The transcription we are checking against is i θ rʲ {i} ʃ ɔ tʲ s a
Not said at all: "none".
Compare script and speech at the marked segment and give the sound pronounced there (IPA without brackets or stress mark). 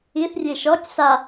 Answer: e